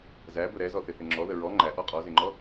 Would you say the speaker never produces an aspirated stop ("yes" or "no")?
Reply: yes